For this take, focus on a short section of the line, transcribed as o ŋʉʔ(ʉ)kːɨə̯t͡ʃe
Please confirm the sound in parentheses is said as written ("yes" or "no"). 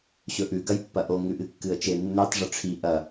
no